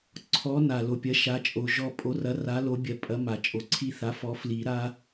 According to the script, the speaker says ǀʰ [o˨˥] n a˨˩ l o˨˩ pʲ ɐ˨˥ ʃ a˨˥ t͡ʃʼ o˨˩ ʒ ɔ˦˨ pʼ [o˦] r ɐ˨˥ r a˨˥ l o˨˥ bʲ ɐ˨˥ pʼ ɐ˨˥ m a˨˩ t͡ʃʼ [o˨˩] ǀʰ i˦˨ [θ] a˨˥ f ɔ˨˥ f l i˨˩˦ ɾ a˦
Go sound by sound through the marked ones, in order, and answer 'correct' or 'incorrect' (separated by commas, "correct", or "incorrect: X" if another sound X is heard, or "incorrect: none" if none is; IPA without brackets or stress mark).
incorrect: ɔ˨˥, incorrect: o˨˥, correct, correct